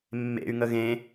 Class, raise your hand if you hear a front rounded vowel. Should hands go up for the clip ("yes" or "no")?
yes